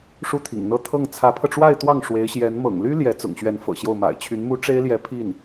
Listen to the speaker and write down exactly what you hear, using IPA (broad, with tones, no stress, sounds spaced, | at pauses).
ʂ u˥˩ t̪ʰ ḭ˨˩ ŋ n̪ ɤ˥˧ t̪ʰ ɤ˥˩ ŋ t͡sʰ ä˧˥ pʰ ɤ˧ ʈ͡ʂ w a˥˧ ɪ̯ t̪ w ɑ˥˩ ŋ ʂ w e˧˥ ɪ̯ ɕ j ɛ˧˥ n m ɤ̰˨˩ ŋ l y˥ l j ɛ˧˥ t͡s ʊ̰˨˩ ŋ ɕ ɥ ɛ˧˥ n f ɤ̰˨˩ ɕ j o˥˩ ʊ̯ m a̰˨˩ ɪ̯ t͡ɕʰ y˧˥ n m u˥ ʈ͡ʂ e˥ ɪ̯ l j ɛ˧˥ pʰ i˥˩ n